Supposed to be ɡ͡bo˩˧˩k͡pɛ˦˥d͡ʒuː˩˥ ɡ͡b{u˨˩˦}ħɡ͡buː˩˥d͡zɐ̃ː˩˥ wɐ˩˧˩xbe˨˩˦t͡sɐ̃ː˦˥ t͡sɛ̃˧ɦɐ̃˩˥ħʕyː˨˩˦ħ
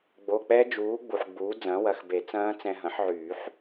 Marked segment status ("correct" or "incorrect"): incorrect